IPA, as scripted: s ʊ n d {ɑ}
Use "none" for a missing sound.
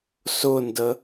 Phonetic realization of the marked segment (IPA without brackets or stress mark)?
ə